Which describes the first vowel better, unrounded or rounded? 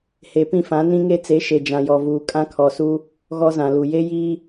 unrounded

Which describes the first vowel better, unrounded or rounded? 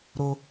rounded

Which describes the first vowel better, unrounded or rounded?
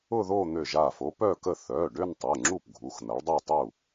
rounded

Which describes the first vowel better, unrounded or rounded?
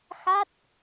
unrounded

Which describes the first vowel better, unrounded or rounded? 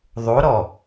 rounded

